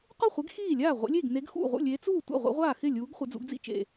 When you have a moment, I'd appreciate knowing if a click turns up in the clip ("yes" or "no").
no